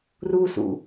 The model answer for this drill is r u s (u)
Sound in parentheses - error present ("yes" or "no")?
yes